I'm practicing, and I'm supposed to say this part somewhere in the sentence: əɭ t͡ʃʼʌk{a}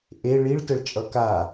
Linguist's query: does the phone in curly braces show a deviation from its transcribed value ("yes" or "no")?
no